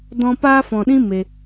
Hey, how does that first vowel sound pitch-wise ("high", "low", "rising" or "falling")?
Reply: high